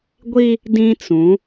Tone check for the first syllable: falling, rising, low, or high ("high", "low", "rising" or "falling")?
high